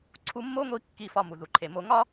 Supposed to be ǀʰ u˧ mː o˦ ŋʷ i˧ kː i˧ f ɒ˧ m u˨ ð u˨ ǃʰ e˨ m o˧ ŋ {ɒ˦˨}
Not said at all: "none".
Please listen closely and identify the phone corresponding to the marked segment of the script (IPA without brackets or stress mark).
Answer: ɒ˦